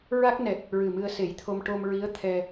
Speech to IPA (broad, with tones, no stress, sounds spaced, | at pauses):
ɹ a˦˥ k̚ n ɛ˨˩ t̚ | ɹ ɨ˨˩ m ɨ˧ ə̯ s e˨˩˦ j t̪ʰ o˧ m ʈ o˧ m ɹ i˧˥ ə̯ t̪ʰ ɛ˧